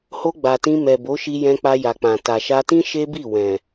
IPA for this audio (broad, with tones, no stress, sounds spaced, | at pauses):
h o˧ ɡ͡b a˨ t ĩ˧ m ɛ˨ b o˨˦ ʃ i˧ j ɛ̃˧ k͡p a˧ j a˨ k͡p ã˨ t a˨ ʃ a˧ t ĩ˦ ʃ e˦ b i˦˨ w ɛ̃˨